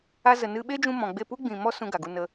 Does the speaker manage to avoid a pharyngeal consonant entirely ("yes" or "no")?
yes